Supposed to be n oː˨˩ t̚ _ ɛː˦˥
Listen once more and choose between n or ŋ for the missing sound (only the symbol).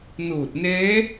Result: n